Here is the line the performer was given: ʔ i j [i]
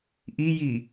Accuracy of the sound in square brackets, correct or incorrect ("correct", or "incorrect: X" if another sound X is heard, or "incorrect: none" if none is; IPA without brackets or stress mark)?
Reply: correct